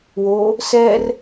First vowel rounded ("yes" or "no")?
yes